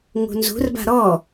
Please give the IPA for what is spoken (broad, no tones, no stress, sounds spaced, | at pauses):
ŋ ṳ n z ṳ r b a̤ ɾ ɔ